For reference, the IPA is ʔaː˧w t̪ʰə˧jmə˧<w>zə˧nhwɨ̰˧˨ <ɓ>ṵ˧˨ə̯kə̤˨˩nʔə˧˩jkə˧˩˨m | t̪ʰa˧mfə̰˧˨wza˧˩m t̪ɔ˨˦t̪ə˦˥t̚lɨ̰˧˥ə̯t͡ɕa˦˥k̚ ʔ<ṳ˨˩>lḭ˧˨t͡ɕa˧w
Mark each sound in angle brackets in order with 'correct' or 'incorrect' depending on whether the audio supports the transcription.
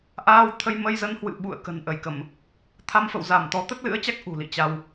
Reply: incorrect: j, correct, correct

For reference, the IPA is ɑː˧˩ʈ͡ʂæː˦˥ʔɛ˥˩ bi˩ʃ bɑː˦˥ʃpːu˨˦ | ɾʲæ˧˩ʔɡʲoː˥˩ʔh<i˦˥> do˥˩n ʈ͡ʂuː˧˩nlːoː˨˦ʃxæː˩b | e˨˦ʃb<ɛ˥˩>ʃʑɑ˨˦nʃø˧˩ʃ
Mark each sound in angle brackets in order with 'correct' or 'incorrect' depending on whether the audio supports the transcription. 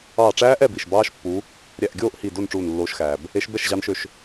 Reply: incorrect: i˧˩, correct

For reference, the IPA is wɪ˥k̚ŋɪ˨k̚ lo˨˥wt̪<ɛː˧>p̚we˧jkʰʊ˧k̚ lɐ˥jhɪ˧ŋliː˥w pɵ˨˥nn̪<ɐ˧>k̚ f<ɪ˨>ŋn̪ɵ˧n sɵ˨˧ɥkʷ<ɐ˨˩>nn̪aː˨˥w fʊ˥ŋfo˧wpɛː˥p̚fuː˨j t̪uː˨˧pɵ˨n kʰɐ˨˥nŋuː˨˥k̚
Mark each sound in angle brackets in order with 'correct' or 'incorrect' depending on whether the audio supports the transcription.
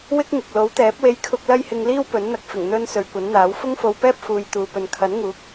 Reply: incorrect: ɛː˨˥, correct, incorrect: ɪ˨˩, incorrect: ɐ˨˥

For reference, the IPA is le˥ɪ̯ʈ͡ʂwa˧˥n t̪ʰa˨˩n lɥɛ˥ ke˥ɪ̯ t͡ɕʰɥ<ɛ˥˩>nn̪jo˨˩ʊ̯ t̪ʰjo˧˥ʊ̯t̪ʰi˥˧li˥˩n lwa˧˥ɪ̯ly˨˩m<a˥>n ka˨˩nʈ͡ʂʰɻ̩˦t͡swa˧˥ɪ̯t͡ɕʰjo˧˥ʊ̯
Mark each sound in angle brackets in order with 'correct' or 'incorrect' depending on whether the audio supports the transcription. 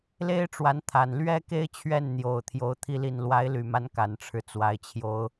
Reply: correct, incorrect: a˧˥

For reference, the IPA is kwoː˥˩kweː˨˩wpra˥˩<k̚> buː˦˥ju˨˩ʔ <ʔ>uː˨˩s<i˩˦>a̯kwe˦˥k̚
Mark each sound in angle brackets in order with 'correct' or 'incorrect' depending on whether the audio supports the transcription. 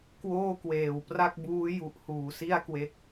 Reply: correct, incorrect: h, incorrect: i˥˩

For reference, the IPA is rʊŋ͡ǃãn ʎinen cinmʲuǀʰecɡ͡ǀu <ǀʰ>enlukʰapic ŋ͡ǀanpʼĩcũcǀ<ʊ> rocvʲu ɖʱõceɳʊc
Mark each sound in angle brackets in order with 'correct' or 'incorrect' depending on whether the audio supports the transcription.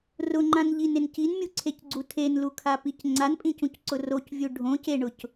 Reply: incorrect: tʰ, correct

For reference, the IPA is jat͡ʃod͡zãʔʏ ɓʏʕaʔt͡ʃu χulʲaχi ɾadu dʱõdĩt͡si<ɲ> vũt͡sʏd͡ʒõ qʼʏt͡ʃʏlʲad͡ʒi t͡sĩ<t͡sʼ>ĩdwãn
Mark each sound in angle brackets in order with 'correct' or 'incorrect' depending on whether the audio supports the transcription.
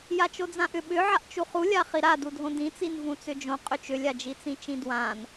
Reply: incorrect: n, incorrect: t͡ʃ

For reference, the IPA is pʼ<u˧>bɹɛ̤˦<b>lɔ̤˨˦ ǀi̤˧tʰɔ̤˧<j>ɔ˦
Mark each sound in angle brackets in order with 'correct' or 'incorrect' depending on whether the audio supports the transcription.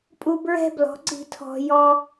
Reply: correct, correct, correct

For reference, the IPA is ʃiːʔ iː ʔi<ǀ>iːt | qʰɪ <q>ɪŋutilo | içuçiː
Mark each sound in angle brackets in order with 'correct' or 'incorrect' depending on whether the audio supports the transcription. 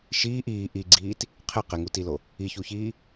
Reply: incorrect: ɡ͡ǀ, correct

